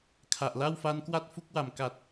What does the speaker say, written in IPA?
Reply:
kʰ a˨˩ ʔ l a˥˩ w f a˦˥ n k w a˥˩ t̚ f u˥˩ k̚ w a˨˩ m k a˨˩ t̚

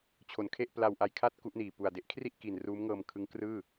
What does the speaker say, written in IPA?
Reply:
t͡ɕʰ o˩˦ n kʰ e˥˩ ʔ p l a˧ w ʔ a˧ j kʰ a˥˩ t̚ k u˦˥ ʔ n iː˨˩ p u˨˩ a̯ d e˦˥ ʔ kʰ r i˥˩ ʔ k i˨˩ n r uː˦˥ m ŋ ɤː˧ m kʰ ɯ˦˥ ŋ k r ɯː˥˩

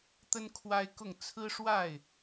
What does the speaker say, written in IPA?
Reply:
t̪ ə˦ n kʰ w a˦ ɪ̯ k ʊ˥˨ ŋ t͡sʰ ɹ̩˦ ʂ w a˥˨ ɪ̯

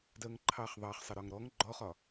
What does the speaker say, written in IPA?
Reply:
d ɜ ŋ ǃʰ ɑ χ ðˤ ɑ χ sˤ ə ɾ ɒ ŋ ɾ ɔ ŋ ɡ͡ǃ ɔ χ ɒ

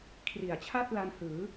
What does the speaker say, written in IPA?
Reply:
kʰ r i˩˦ a̯ t͡ɕʰ a˥˩ t̚ l a˧ n h ɯː˩˦

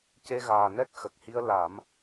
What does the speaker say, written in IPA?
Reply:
c e˧ ɣ aː˨˩ n ɛ˦˥ k̚ x ə˨˩ k̚ h i˧ ə̯ l a˨˩˦ m

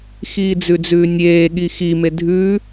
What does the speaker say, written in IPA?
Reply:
x iː d͡z ʉ d͡z ʉː nʲ eː ɠ i x i m e dʱ ʉ

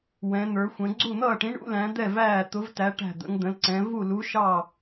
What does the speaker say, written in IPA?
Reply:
w ɛ̃˧˥ n̪ ə˞˧˥ xʷ ə̃˧˥ ɡ͡ǀ u˥˧ n̪ ʌː˥˧ ʈ ĩ˧˥ ɳ ṵ˧˥ l æ̃˧˥ d̪ ɛ˥˧ v æː˥˧ t̪ ʊ˧˥ v t æ˧˥ ʈ æ̤˥˧ d̪ ə̰˧˥ ŋ d̪ ə̃˧˥ l ǀ ɛ̃˧˥ v u˥˧ l u˧˥ ʃ ɑ˥˧

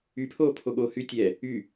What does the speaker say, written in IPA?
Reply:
y pʰ oː pʰ o ɠ oː h y tʲ ɛ | y

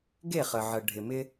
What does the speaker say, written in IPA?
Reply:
ɡ e˦˨ χ ə˨ ʕ ə˨ ɖʱ ɪ˨ m ɪ˦

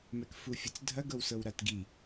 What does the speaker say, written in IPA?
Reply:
m ɛ k f u fʲ ɤ t͡s dʱ ɐ ɡ ɤ w s ɤ w ɾ a t ɡ i

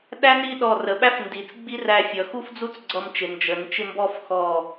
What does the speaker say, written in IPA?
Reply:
ɗ æ˥ n i˥˧ ɗ ɔ˧˩ r ə˩˧ ɓ æ˥ f n d i˩˧ t͡s ɡ͡b i˥ r æ˧ fʲ ʌ˩˧ x u˥ f d͡z u˥˧ t͡s ɡ͡ǀ ʌ˧ m t͡ʃ ɪ˩˧ n d͡ʒ ə˩˧ n t͡ʃ ɪ˥˧ m b ɔ˥˧ f x ɔ˧˩

